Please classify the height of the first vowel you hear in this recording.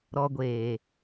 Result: mid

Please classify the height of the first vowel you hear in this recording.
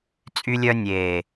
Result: high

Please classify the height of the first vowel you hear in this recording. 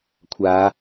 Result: low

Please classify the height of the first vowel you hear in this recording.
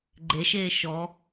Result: mid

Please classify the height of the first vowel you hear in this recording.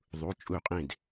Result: high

